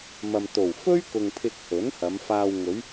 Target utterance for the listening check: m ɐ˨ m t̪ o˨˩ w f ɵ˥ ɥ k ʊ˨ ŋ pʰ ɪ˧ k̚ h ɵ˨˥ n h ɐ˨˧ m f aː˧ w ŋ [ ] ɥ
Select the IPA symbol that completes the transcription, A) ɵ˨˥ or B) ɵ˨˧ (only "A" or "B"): B